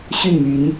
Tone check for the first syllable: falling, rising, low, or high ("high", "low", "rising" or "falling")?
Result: falling